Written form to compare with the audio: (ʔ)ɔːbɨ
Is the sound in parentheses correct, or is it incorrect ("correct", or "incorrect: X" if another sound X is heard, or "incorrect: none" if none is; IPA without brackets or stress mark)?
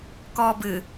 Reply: incorrect: k